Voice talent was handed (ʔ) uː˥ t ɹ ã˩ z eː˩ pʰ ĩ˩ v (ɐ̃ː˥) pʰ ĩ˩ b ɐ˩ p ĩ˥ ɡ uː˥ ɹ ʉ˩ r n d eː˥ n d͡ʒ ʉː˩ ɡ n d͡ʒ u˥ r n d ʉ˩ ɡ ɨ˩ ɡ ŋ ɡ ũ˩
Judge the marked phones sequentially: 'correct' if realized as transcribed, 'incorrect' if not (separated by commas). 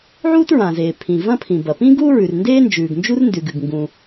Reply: incorrect, incorrect